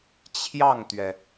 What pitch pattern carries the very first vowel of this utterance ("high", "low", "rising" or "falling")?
falling